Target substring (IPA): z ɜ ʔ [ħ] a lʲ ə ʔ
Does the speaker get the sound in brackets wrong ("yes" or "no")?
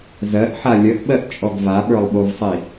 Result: no